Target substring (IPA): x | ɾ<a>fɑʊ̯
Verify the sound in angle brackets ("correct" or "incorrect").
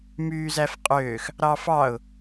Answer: incorrect